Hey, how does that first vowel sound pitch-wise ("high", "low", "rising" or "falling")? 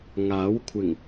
rising